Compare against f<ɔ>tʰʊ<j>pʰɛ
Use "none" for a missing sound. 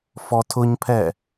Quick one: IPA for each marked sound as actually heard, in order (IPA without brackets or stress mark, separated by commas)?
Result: ɔ, ɲ